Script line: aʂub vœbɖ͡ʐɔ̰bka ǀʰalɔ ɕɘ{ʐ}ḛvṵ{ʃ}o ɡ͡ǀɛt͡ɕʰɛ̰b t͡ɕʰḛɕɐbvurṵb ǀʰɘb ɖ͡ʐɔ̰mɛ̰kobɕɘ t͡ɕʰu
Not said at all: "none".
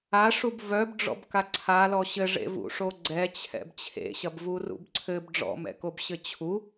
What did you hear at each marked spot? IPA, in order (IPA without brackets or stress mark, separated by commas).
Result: ʐ, ʂ